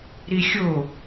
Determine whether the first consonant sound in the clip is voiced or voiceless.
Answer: voiced